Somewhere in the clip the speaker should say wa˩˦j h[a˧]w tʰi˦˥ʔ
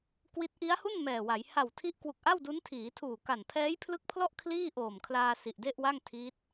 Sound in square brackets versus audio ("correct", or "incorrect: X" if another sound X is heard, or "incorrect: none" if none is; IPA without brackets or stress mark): incorrect: a˨˩